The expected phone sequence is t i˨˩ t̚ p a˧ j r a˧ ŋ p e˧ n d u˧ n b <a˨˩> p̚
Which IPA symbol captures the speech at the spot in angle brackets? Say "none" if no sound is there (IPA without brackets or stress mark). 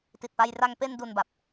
a˨˩